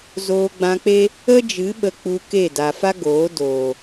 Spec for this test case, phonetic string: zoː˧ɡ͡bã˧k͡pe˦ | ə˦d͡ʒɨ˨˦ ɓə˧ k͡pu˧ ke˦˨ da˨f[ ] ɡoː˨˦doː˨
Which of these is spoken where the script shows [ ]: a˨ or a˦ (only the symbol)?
a˦